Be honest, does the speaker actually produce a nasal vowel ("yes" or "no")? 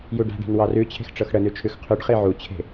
no